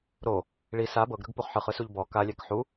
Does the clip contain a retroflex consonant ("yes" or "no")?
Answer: yes